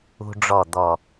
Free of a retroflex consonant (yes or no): no